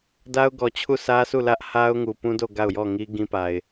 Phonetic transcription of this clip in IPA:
d a˦ ʊ̯ ɡ ɔ˨ t͡ɕʰ u˦˨ sʰ ä˦ sʰ u˦˨ l ä˦ ʔ h a˦ ʊ̯ ŋ u˨ p ũ˦ d o˦˨ ɡ a˦˨ ʊ̯ j ɔ˦˨ ŋ i˦ ɡ ĩ˦ p a˨ ɪ̯

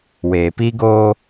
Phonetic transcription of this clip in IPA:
w eː˨ p iː˦ ɡ oː˦

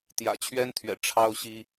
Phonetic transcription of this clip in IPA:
t̪ j ä̰˨˩ t͡ɕʰ ɥ ɛ˥ n t̪ʰ ɥ ɛ̰˨˩ ʈ͡ʂʰ ɑ˥ ʊ̯ ɕ i˥

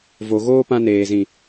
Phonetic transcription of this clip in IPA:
v o˨ ɣ oː˧ p ã˧ n eː˨ z ĩ˨

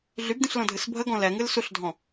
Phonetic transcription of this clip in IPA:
ɮ y b d ĩ ɬ l ɔ̃ dʱ ɨ s bʱ ə ɡ ɔ̃ l ɛ ŋ ɨ l s u ɬ dʱ ɔ̃

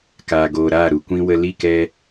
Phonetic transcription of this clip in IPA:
k aː˨ ɡ oː˨ ɾ aː˦˨ ɾ u˨ kʷ ĩ˦ w ə˧ l i˦˨ k ɛ˧

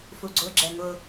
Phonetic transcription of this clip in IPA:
f u ɡ͡ǀ ʊ ɡ͡ǁ ɛ ŋ ʊ

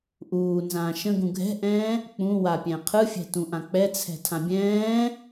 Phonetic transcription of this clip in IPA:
ʔ uː n z ãː ʃ ə̃ ɡ ũ ɡʱ ɛ̤ ʔ ɛ̃ː | k͡p ũ w a pʲ ɛ̃ qʰ ɯ fʲ ɛ̤ t ũ ʔ ã k͡p ɛ t͡sʰ ɛ̤ tʰ ã bʲ ɛ̃ː

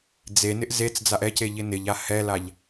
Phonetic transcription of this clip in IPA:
d͡z e n ɪ ʔ z e t͡s d͡z a ʔ ɛ c e ʎ ɪ n ɪ ʎ a h ɛ l a ʎ

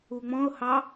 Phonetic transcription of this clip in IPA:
u ŋ͡m ɔ̃ ʊ̯ h ɑ

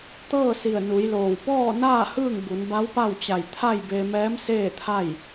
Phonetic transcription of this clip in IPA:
t̪ ɤː˥˨ s i˧˩ ə̯ n u˩˧ j l oː˧˩ w p ɔː˥˨ n aː˥˨ h ɯː˥˨ ŋ b u˩˧ n b a˧˥ w p a˥˨ w t͡ɕ a˧˩ j t̪ʰ a˥˨ j b e˧ m ɛː˧˥ m s eː˥˨ t̪ʰ a˥˨ j

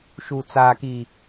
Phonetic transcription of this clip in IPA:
ʃ u˨ t͡s aː˨ k i˨

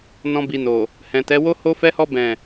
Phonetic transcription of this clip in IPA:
n ɔ̃˧ b i˨ n o˨ | h ɛ̃˨ t ɛ˨˦ w o˦ h o˦ f ɛ˦ h ɔ˦ b ɛ̃˦˨

